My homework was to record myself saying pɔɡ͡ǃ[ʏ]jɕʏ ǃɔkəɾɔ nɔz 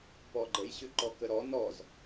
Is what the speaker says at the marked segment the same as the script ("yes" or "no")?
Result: no